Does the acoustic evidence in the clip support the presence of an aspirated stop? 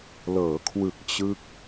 yes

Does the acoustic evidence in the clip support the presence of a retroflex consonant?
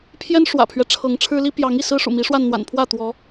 yes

